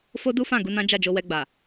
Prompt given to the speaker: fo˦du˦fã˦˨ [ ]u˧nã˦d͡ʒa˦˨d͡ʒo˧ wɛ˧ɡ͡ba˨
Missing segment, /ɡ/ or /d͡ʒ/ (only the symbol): ɡ